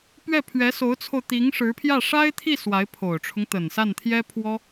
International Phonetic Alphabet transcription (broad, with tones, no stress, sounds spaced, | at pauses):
p ɥ ɛ˥˩ pʰ ɥ ɛ˧˥ s o˧˥ ʊ̯ t͡sʰ o˧ ʊ̯ t̪ i˧˥ ŋ ʂ ɻ̩˧˥ pʰ j ä˥˩ ʂ a˥ ɪ̯ t̪ʰ i˥˩ s w a˧˥ ɪ̯ pʰ o˨˩ ʊ̯ ʈ͡ʂʰ ʊ˦ ŋ t̪ ə˨˩ n s a˥˩ n t̪ʰ j ɛ˥ pʰ w ɔ˥